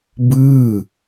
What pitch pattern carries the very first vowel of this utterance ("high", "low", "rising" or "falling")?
falling